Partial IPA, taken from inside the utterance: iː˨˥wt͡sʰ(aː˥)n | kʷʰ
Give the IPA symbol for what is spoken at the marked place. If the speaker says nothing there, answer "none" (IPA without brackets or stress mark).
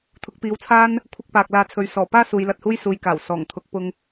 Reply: aː˥